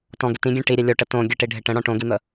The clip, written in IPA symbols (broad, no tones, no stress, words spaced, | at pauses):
tɔ̃ɡɪ tĩɡʲɛ̃ ʈiɾʲɛ lʲoʈə tõ ɡʲəʈiɖʱɪ ʈə̃ɽɔ̃ ʈõɡin̪ə